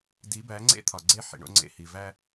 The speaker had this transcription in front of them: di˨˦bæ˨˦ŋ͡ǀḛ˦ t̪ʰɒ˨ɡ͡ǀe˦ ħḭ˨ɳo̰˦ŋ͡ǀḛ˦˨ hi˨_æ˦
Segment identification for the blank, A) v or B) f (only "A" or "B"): A